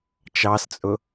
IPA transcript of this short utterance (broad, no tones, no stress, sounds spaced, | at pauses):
t͡ʃ ɑ s t͡sʼ ʊ